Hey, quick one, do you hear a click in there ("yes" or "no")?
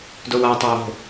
no